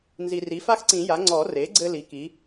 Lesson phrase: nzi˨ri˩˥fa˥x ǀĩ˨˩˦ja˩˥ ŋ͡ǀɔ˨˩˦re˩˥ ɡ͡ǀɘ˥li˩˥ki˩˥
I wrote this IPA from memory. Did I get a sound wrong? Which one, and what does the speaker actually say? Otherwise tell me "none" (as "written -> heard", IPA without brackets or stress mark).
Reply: none